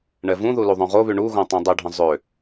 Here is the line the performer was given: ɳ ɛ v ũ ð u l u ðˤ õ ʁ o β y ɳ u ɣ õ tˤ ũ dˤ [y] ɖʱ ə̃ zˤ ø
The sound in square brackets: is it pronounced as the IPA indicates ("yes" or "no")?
no